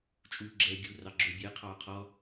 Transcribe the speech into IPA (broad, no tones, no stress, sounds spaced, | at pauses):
t͡ʃʼ uː ɡ͡ǁ ɛː ɡʲ u r ɑ ɡ͡ǁ ɵː bʲ əː qʰ ɑː qʰ ɔ